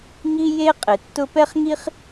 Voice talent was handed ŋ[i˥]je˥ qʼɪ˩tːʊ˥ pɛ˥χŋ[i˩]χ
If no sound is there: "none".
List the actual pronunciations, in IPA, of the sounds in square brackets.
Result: i˥, i˥

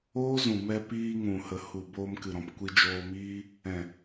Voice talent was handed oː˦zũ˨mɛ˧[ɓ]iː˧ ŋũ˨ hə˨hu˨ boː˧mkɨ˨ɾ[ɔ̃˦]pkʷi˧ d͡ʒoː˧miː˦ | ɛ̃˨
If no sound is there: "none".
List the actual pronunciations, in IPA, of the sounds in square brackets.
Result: p, ɔ̃˨

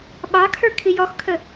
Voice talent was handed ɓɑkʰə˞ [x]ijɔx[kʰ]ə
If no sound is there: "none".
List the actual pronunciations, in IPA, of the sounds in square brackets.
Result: kʰ, kʰ

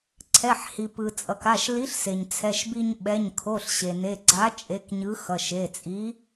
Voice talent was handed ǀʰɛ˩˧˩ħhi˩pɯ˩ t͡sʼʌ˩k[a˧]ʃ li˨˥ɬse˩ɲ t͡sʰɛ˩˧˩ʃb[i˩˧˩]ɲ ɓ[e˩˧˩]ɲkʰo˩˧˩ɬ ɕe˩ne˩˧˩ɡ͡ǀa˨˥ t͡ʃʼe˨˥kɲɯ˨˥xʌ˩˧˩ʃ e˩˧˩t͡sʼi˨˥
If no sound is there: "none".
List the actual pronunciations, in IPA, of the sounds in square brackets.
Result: a˩˧˩, i˧, ɛ˩˧˩

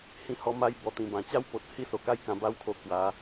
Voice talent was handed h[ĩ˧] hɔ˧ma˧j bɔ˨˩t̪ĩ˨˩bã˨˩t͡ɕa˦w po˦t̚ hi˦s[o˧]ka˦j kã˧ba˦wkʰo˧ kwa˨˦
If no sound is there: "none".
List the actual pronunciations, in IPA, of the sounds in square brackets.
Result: ĩ˧, o˨˩

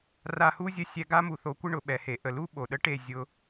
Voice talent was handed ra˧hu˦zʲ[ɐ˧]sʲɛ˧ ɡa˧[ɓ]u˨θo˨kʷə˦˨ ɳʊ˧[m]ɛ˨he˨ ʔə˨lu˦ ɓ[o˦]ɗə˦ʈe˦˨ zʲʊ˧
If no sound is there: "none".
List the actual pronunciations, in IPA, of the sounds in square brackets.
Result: ə˧, m, ɓ, o˨

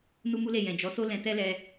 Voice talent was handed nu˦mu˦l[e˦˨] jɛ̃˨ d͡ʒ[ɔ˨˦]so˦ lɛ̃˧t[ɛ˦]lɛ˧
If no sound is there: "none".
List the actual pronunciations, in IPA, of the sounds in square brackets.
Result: e˦˨, ɔ˨˦, ɛ˦

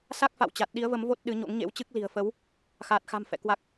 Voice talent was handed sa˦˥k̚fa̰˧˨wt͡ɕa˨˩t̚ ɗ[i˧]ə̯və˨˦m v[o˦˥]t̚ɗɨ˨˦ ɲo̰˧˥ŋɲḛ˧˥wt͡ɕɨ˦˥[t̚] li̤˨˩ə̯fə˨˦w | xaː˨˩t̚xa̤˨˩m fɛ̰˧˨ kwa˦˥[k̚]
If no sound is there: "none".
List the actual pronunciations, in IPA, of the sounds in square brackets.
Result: i˨˦, o˦˥, k̚, k̚

